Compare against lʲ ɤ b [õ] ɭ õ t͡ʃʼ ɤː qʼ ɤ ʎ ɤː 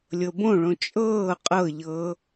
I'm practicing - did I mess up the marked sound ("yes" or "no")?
no